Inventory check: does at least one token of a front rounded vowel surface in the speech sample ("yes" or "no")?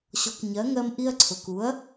no